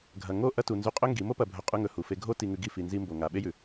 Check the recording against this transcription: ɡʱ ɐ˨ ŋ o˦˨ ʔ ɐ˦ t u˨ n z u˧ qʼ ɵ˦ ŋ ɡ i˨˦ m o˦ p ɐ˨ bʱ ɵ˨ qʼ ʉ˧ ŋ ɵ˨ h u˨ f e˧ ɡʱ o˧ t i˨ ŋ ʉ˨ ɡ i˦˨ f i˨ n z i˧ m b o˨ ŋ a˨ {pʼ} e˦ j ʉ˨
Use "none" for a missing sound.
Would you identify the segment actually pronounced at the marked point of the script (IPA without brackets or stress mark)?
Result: ɓ